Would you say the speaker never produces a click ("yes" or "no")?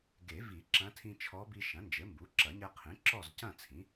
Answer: no